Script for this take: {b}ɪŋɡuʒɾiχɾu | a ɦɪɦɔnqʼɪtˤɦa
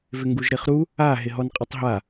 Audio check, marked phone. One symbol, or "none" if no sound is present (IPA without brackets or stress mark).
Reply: v